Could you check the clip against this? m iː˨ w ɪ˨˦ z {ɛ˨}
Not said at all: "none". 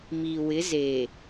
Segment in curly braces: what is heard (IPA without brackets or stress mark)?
e˨